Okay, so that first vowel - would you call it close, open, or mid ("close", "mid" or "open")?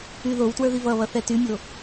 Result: close